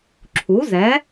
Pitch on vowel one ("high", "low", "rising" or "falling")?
rising